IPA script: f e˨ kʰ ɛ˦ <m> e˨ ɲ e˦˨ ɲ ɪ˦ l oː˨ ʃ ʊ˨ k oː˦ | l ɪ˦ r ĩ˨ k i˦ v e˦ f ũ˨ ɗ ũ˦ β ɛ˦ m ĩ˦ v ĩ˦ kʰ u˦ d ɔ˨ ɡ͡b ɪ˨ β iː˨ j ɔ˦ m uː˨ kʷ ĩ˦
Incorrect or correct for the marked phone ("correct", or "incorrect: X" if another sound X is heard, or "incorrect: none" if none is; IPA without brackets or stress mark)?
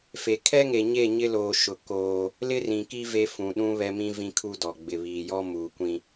incorrect: ŋ